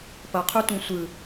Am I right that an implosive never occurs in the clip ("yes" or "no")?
yes